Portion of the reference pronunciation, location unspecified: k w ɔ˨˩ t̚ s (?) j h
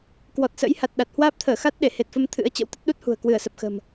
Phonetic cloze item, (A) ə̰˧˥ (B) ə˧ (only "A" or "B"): A